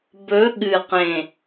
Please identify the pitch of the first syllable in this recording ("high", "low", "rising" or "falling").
rising